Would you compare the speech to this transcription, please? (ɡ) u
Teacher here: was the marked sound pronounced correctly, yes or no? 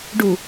no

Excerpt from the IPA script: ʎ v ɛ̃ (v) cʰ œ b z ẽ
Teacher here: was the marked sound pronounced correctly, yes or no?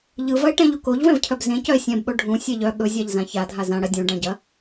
yes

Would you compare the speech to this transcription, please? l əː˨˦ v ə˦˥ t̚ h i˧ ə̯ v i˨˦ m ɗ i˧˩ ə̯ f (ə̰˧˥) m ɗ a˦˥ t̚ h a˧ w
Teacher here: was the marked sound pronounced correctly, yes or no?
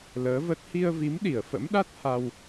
yes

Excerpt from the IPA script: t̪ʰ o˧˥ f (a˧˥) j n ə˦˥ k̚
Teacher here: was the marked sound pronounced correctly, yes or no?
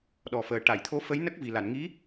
no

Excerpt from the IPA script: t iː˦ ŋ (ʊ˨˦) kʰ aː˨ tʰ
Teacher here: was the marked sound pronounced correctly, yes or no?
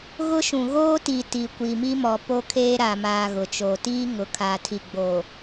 no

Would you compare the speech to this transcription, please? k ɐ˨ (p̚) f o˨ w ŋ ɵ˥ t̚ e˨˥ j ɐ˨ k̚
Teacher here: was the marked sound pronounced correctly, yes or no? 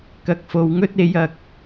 no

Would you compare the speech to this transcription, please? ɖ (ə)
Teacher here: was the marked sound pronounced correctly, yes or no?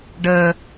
yes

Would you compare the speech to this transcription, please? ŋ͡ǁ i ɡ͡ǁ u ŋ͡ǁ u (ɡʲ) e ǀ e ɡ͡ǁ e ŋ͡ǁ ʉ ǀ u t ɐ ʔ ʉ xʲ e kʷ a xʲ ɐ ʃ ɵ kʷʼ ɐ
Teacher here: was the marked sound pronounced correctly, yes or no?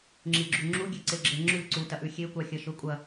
yes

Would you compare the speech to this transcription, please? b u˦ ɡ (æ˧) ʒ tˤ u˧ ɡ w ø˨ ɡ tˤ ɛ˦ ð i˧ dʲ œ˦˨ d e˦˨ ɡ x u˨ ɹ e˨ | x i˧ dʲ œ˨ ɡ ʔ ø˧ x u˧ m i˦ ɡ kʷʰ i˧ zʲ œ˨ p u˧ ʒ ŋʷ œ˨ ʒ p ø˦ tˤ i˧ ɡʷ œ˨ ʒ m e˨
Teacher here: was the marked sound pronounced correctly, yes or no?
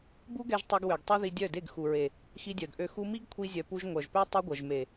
no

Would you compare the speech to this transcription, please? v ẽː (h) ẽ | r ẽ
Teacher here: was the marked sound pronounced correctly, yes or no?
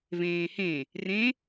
yes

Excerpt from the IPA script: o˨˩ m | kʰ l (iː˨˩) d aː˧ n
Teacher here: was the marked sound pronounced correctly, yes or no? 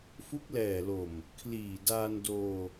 yes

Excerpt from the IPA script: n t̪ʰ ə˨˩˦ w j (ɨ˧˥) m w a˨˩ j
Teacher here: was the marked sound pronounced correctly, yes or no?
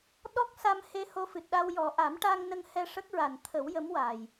no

